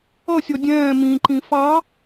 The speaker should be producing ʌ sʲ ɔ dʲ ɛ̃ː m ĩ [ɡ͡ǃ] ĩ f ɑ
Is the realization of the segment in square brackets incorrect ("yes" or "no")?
yes